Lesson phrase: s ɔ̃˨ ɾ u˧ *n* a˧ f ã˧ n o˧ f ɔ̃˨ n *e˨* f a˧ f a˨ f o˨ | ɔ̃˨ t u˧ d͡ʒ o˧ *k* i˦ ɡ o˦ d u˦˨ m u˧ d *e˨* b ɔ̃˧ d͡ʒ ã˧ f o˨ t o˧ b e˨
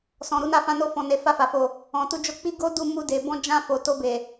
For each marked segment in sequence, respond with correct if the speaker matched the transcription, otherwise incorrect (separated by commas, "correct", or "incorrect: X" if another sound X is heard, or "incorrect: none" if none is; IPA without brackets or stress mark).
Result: correct, correct, incorrect: k͡p, correct